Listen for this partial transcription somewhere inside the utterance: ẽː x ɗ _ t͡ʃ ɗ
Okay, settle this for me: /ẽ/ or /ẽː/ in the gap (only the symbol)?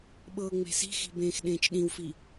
ẽː